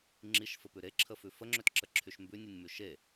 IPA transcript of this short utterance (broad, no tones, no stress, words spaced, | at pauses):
ŋ͡ǁiʃfɘpʉ ɾeǁʰəfʉ fəŋ͡ǁøtǁəǁʰyʃ mbʉnʲenʲmʉ ʃe